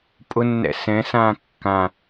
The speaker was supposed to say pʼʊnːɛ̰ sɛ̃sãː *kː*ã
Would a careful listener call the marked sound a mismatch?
no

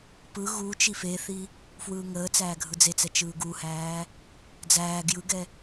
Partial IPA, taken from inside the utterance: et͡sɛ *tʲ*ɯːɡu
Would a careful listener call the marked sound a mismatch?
yes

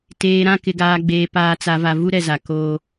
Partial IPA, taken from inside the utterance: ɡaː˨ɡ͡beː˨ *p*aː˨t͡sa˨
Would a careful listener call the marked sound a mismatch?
no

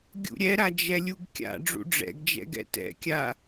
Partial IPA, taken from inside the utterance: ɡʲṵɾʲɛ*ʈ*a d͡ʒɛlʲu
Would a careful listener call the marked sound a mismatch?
yes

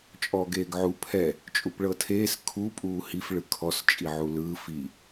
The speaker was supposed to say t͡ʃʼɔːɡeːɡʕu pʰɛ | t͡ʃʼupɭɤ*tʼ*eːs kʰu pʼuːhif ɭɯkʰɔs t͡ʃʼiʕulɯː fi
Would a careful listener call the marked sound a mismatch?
yes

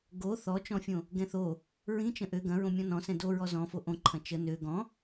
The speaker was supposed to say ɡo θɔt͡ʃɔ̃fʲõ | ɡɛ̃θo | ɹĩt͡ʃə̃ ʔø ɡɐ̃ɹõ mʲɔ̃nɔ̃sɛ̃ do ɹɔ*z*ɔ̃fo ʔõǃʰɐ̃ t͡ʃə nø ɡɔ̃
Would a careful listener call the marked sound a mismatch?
no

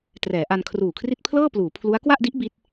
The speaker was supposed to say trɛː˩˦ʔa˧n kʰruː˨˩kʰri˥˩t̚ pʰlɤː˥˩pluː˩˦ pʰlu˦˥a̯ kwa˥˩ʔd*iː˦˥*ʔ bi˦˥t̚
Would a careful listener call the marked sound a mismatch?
yes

